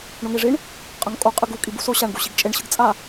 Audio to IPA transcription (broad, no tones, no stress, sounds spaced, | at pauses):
ɳ o ŋ e ʐ i ɳ | qʼ ʌ ŋ kʼ o qʼ ɯ ɡ u kʼ i b u s o ɕ a ɳ ɡ u ɕ i ɡ t͡ʃʼ e ɳ ɕ ɯ ɡ t͡sʼ a